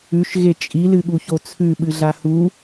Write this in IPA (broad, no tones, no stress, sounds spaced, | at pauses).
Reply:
ʉ ʃ ɣ e t͡ʃʼ i l ɨ ɠ u ç o t͡sʰ ʉ ɓ ɨ ɮ a h u